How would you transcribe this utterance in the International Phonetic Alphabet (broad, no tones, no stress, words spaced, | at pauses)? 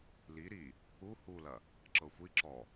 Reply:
li ɾi | u hulɐ | ǁɤxʷi ǁɔ